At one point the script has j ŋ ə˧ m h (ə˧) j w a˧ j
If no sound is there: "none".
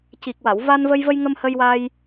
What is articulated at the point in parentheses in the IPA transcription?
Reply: ə˧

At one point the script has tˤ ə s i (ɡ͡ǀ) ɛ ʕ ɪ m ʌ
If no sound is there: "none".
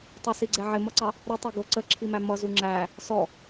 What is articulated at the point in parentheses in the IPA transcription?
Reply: ɡ͡ǀ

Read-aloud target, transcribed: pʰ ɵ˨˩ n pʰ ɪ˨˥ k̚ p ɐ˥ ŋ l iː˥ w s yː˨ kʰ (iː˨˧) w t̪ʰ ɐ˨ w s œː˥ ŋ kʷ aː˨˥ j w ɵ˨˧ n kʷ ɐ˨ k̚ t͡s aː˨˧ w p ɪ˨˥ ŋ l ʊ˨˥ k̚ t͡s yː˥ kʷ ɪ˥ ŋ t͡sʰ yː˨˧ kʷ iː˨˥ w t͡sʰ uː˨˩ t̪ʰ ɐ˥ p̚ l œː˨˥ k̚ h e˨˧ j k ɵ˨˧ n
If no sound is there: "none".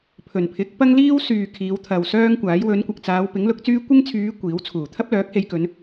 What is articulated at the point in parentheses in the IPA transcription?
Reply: iː˨˧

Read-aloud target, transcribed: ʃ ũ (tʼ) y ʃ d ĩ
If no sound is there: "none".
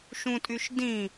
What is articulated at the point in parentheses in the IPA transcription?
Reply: tʼ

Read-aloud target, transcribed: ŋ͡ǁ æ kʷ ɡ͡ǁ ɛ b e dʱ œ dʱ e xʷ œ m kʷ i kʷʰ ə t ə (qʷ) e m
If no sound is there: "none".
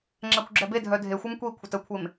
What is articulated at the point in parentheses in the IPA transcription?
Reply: kʷʰ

